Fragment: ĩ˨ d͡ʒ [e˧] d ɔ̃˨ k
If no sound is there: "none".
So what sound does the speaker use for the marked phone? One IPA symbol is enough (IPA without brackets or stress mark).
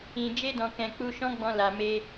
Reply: e˧